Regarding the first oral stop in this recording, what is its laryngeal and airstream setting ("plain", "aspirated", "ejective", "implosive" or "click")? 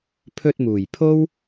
aspirated